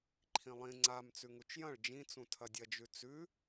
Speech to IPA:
ǃʰ ĩ lˠ ĩ ŋ͡ǀ a m t͡s ʉ ŋ u t͡ʃ j ɐ̃ ɭ d͡ʒ ĩ t͡s ũ tʰ ɐ dʲ ɐ d͡ʒ ʉ t͡s ʉ

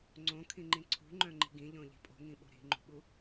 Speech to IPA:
ŋ͡ǀ õ kʰ ĩ ŋ͡ǃ ĩ ǀʰ ṳ ŋ͡ǃ œ̃ ŋ͡ǃ i̤ ɡ ĩ ʎ õ ʎ i̤ pʼ o̤ ŋ ĩ ɓ o̤ ɾ i̤ ŋ͡ǃ ṳ ɓ u

